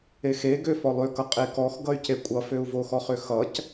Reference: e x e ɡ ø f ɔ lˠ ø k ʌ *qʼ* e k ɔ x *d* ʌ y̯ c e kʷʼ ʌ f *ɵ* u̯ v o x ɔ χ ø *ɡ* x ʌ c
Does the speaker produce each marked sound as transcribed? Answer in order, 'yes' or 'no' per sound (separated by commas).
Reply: yes, no, no, no